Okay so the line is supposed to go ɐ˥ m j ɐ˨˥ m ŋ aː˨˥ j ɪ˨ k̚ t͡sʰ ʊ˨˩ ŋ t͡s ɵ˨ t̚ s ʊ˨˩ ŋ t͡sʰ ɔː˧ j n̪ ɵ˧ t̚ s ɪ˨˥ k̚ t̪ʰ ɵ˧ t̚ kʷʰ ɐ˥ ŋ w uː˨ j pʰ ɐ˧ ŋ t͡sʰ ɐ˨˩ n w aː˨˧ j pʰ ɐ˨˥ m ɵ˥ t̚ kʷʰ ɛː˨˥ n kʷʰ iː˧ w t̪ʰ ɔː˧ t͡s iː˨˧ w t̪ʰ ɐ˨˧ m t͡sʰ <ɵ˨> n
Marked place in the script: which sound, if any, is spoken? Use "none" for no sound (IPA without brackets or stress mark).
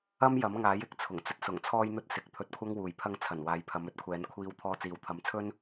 ɵ˥